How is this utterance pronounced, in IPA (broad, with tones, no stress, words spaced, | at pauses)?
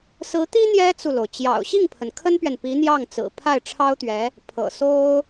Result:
sɹ̩˧˥t̪i˥ n̪jɛ˥t͡su˨lo˩ʊ̯ t͡ɕjɑ̰˨˩ʊ̯ɕi˥˩ŋpʰə˩n kʰə˥npɥɛ˨n pi˧˥n̪jɑ˥˩ŋt͡sɹ̩˨˩ pʰa˥˩ɪ̯ʈ͡ʂʰɑ˥ʊ̯t̪ɥɛ˧˥ | pʰɤ̰˨˩so˥ʊ̯